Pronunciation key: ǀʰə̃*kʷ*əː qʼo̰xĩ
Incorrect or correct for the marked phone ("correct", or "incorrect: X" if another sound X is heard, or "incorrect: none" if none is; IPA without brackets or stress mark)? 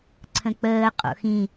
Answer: incorrect: k͡p